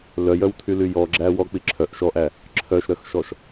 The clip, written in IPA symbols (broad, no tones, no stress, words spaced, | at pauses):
lœjœwtʰyly jɔɡ͡ǁæ wɔk͡pi ǁʰœʔ ʃɔʔæ | ǁʰœʃɾœxʃɔʃ